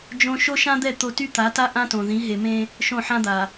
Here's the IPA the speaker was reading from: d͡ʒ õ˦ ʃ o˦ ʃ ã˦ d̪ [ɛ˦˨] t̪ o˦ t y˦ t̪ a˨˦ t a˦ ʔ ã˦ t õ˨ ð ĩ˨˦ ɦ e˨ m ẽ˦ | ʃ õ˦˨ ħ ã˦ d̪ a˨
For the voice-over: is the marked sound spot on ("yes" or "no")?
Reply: yes